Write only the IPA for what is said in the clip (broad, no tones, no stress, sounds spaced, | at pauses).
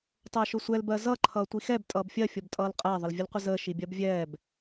tˤ əː ʃ ʊ sʷ ɛ l b ɜ z ʌ ǃʰ ʌː tʷ i x ɛ b tʼ ʌː b fʲ ɜ fʲ ʌ b tʼ ʌː l qʼ æ ðˤ ə l vʲ ə l qʷ ə z əː ʃ i bʲ ɜ b vʲ ɛː b